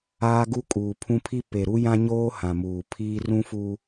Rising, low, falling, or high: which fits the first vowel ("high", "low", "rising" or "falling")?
high